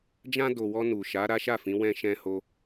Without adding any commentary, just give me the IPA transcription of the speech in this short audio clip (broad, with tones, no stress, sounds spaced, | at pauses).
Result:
d͡ʒ ã˧ d o˨ w ɔ˧ n u˨ ʃ a˨˦ ɾ a˦ ʃ a˦˨ f ĩ˨˦ w ɛ̃˧ ʃ ɛ̃˧ h o˧